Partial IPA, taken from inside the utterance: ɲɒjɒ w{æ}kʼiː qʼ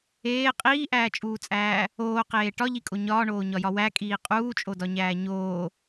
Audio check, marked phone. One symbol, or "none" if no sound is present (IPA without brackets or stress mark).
æ